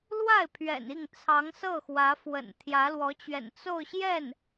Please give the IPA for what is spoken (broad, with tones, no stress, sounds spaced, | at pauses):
l w a˥˩ ɪ̯ pʰ ɥ ɛ̰˨˩ n i˥˩ ŋ t͡sʰ ɑ˧˥ ŋ s ɤ˥˩ x w ä˧˥ f w ə̰˨˩ n t̪ʰ j ä˧˥ l w ɔ˧˥ t͡ɕ ɥ ɛ̰˨˩ n t͡s o˥˧ ʊ̯ ɕ j ɛ˥˩ n